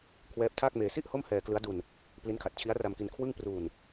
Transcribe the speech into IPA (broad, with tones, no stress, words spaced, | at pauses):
kʰwɛː˦˥p̚tʰaː˥˩k̚meː˧ si˥˩ʔ ho˥˩mhɛː˧klɯ˦˥a̯du˧n | pli˦˥nkʰa˨˩t̚ t͡ɕʰi˦˥a̯ra˧mki˧n kʰwɯ˥˩ŋ pruː˧n